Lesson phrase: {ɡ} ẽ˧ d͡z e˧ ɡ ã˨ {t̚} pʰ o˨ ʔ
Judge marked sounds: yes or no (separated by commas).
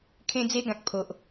no, no